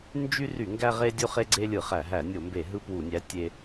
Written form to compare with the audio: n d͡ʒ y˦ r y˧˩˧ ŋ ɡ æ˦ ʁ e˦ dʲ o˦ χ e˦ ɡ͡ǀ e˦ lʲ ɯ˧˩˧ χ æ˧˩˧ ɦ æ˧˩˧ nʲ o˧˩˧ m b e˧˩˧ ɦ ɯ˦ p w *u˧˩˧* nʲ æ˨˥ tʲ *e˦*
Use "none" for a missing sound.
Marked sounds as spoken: u˧˩˧, e˦

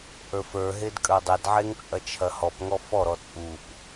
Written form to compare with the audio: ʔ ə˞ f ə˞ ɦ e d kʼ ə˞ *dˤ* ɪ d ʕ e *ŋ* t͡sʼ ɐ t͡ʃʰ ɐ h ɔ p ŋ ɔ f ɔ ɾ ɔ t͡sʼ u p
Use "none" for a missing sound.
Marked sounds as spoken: dˤ, ŋ

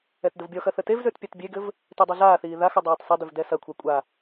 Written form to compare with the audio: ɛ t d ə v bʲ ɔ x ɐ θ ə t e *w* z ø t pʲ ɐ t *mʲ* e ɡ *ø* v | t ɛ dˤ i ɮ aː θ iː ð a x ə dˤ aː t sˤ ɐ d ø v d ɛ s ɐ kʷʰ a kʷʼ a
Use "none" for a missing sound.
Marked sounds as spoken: v, bʲ, ɘ

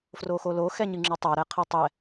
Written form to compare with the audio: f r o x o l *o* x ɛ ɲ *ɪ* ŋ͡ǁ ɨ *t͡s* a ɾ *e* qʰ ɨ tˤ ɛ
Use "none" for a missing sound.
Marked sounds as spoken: o, ɨ, tˤ, ɛ

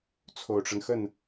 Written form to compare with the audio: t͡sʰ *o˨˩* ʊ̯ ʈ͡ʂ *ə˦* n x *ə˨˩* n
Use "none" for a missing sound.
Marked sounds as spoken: o˨˩, ə˦, ə˥˩

